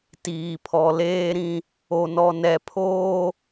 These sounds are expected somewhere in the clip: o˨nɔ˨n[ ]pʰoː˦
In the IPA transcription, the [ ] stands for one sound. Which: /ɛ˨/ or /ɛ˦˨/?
ɛ˨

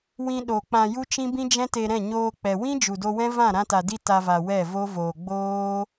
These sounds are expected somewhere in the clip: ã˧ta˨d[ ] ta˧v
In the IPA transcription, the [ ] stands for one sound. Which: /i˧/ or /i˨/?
i˧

